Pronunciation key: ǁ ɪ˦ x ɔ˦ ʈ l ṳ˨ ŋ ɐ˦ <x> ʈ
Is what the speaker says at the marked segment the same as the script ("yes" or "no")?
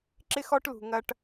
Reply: no